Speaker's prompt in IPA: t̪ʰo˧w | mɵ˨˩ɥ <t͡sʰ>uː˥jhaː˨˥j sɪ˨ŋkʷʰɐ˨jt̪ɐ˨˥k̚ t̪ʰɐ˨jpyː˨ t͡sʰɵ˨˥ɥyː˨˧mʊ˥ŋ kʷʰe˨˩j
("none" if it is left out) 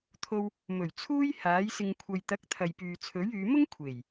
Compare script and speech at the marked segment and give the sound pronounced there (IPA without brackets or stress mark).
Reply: t͡sʰ